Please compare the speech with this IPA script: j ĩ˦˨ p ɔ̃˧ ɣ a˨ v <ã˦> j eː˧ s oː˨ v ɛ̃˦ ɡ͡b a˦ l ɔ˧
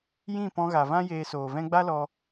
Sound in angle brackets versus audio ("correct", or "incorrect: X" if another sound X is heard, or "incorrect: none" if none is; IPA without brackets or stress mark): correct